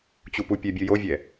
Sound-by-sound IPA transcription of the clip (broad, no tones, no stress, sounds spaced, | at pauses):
t͡ɕ u p u pʲ ɛ bʲ ɯ j o vʲ ɛ